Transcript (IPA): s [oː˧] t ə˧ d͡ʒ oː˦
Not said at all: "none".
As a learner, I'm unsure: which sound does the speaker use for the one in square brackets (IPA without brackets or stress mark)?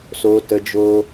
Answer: oː˧